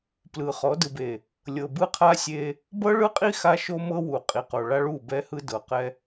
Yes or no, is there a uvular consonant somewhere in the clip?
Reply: yes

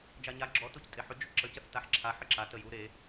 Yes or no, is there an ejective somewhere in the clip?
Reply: yes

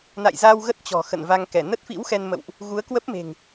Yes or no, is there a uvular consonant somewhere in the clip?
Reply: no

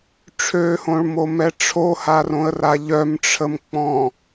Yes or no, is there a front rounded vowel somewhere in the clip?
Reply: yes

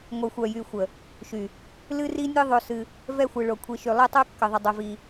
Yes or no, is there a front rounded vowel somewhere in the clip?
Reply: yes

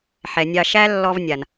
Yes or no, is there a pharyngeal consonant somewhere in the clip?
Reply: yes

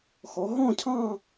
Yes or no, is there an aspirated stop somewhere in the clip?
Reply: yes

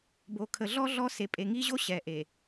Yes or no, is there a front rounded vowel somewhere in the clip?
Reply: no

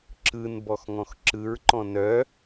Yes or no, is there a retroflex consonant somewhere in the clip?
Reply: no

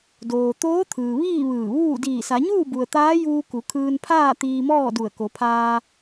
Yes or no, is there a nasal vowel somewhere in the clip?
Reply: no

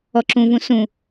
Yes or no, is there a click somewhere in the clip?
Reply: yes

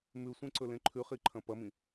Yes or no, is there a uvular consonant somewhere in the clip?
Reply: yes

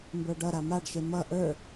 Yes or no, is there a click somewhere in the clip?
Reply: no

